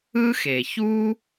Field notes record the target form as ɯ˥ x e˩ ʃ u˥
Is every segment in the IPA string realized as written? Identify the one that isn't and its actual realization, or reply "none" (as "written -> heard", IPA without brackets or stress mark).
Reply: ʃ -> ç